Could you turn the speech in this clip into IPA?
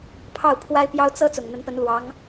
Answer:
pʰɑ˥˩ʊ̯pʰwa˥ɪ̯pjɑ˥ʊ̯ t͡sɤ˥ t͡sʊ˨˩ŋn̪ə˧˥npə˧˥n lwɑ˧˥ŋ

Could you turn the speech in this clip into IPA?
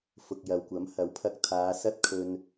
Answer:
fʊ˨k̚jɐ˨wkʷɐ˨˥m hɐ˨˥wpʰɐ˧k̚t̪ʰaː˨˧ sɐ˥t̚kʰɵ˧n

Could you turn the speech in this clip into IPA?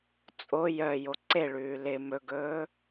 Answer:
t͡sʼo jœ joǀeɭʉː lɪ mɵɡɵː

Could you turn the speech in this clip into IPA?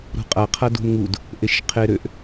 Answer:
ɾṳqʼa qʰadṳnŋud | ʔeʃqʰeɾøʔ

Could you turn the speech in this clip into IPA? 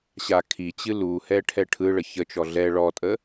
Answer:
ɕakʰit͡ɕɨ luhɛ ʈʰɛʈʰɯɭə çət͡ʃɔ ɮɛ ɭɔtʼə

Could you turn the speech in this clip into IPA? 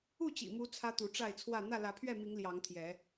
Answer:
u˥˨t͡ɕḭ˨˩mu˨˦ t͡sʰä˦t̪u˨˦ʈ͡ʂa˥˨ɪ̯t͡sʰwä˥˨ n̪ä˥˨lä˨˦pʰɥɛ˥˨mi˨˦ŋ ljɑ˨˦ŋt̪ʰjɛ˨˦

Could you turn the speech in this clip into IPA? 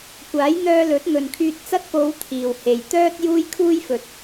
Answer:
kʷaː˨˥jn̪œː˧lɵ˨˥t̚ ŋɵ˨nkʰyː˧t̚t͡sɐ˥t̚ po˨˧w t̪ʰiː˨˩whe˨˩j t̪œː˥t̚ juː˥jkʰuː˥jfɵ˨˥t̚

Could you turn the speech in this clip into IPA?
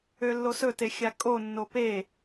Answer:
ølːosɵte xʲakʼonːo pe

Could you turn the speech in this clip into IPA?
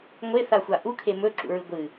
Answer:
ŋʷeθaxʷa ʔukʰe mɵǁṵɹɨ ɡʷɨ

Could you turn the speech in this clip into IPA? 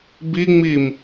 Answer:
biŋ͡miːm

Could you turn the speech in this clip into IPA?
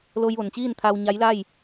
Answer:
lo˧jʋo˩nt͡ɕiː˥˨n t̪ʰa˧wɲa˧˥jla˥˨j

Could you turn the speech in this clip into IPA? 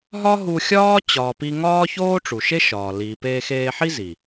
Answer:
ɦɒ˦ɦu˧xʲɒː˦ t͡ɕɒː˧pi˦ ŋɒː˦çoː˦ʈ͡ʂu˨ʃe˦ ʃɒː˨ liː˨peː˧xeː˧ħi˦ zi˨

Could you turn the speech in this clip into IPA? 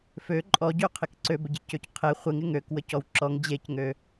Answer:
fø ǃʼɔɟøqʰɪk ǀøbəɟecøc qʰe χʷɪŋɪ ŋøkwəcɔw ǁɔŋ d͡ʑecŋø

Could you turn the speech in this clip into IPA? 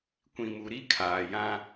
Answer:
kʷĩ˨mu˨ ɾi˦ kʰaː˨jã˦

